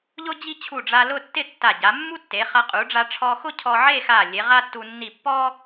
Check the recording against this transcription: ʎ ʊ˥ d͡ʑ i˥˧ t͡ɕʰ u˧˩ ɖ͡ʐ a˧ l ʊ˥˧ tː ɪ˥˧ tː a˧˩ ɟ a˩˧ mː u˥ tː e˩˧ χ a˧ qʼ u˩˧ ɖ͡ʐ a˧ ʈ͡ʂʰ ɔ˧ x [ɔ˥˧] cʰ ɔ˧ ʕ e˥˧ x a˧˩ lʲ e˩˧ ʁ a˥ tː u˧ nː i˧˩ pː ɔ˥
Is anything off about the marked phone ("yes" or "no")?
yes